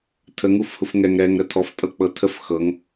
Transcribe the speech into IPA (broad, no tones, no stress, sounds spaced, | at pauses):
tʰ ə ŋ u f h u f ŋ ɛ ŋ ɾ ɛ ŋ ɾ ə tʰ ɔ f tʼ ɤ k͡p ɤ tʰ ə f x ɤ ŋ